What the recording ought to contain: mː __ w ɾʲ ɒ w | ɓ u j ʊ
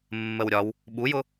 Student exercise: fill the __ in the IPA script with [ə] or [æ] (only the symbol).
ə